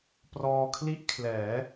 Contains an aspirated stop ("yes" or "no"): yes